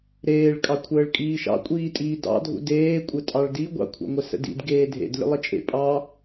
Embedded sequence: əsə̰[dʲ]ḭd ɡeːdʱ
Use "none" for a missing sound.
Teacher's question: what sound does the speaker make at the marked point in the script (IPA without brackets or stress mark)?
d